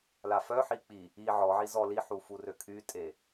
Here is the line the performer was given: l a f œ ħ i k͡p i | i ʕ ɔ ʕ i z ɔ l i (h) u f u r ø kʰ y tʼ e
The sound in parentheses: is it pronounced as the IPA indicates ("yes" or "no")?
no